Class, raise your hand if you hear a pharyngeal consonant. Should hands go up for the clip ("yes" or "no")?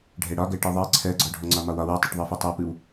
no